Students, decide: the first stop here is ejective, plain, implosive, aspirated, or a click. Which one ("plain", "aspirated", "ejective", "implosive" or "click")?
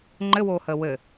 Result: click